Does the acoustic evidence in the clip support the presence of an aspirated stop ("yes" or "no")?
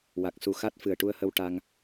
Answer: no